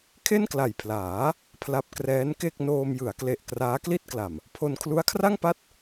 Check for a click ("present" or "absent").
absent